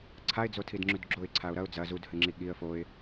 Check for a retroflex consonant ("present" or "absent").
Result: absent